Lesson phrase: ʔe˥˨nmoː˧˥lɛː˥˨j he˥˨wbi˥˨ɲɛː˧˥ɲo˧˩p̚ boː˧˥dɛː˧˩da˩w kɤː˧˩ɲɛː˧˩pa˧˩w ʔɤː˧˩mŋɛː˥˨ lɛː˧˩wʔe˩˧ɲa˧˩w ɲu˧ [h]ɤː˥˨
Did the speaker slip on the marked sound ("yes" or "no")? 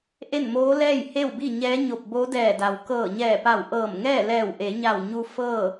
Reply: yes